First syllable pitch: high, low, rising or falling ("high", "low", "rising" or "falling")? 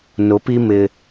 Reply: rising